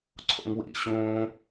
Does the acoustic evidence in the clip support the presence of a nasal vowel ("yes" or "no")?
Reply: yes